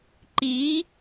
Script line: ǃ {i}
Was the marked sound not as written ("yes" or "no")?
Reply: no